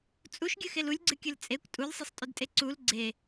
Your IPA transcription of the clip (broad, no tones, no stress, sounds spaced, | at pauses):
t͡sʼ u ʃ ɡʲ ɨ x e l u lʲ ɡ͡ǀ ɨ kʲ ɨ l t͡sʼ e kʷ tʼ u lʲ sˤ e sˤ tʼ ʊ d tʼ e ǀ u l ɡ͡ǀ e